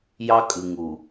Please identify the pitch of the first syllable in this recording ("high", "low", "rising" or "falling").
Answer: high